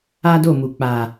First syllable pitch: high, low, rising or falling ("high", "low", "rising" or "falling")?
high